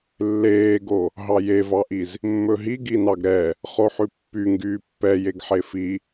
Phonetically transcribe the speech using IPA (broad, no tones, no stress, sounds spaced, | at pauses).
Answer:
lː eː ɡ o | ɦ ɑ j e v ɑ ʔ i z | mː ɵ ɦ i ɡ i n ɑ ɡ ɾ ɛ | χ o ħ ʉ pː y ŋ ɡ yː pː ɛ j e ɡ ħ e f i